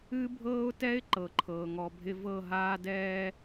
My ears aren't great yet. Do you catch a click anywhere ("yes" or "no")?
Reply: yes